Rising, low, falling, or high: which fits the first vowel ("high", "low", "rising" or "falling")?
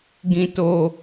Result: high